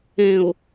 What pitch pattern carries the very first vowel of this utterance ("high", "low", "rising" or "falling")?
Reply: low